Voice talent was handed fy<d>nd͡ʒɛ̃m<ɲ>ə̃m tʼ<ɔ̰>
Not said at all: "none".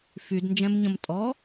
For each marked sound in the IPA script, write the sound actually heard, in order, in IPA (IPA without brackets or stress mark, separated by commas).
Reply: d, ɲ, ɔ